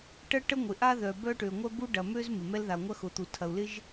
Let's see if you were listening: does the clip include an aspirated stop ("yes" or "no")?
yes